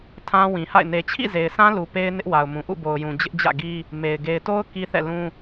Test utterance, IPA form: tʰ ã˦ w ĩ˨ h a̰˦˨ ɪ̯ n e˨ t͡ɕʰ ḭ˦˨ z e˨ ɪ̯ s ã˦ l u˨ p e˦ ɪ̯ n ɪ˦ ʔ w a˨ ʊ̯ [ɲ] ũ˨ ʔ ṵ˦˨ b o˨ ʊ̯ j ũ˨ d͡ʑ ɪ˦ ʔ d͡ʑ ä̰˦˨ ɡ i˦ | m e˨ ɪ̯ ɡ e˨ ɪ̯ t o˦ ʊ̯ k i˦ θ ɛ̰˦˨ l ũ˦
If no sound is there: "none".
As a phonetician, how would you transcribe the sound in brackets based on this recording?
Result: m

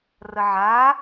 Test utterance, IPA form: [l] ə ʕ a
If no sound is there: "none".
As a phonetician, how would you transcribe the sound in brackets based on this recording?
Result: r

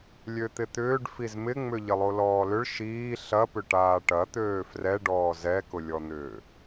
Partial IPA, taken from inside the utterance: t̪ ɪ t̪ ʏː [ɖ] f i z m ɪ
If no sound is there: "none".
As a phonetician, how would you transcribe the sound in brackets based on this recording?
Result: ɖ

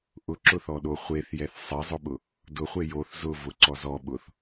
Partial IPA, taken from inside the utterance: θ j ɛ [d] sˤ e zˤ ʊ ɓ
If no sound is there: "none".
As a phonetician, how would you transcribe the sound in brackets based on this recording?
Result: θ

